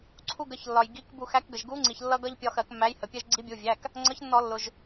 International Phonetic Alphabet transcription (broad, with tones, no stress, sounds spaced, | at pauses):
ǀʰ u˧ ɡ ə˩˧˩ ç lː ɒ˩ j ɡ i˩˧˩ k b u˧˩˧ x æ˨˥ k ɡ ə˩ ʒ ɡ u˨˥ ŋ͡ǀ i˩ ç lː ʌ˧ ɡ ʌ˧ ʎ pʲ ɒ˧ x ɜ˧˩˧ k mː æ˨˥ j h ə˩ pʲ ɛ˧ ʒ ɡ͡ǀ i˨˥ bʲ u˩˧˩ vʲ æ˩˧˩ k | ŋ͡ǀ ʌ˨˥ ç nː ɔ˧˩˧ lː ʊ˩ ʒ